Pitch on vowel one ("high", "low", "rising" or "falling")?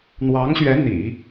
rising